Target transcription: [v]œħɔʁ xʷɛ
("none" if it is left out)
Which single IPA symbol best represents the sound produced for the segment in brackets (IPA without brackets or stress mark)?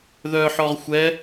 ð